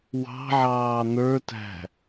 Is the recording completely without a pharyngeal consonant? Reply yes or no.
no